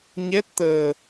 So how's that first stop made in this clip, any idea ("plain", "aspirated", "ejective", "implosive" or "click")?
plain